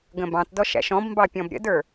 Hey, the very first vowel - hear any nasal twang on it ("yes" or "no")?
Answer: yes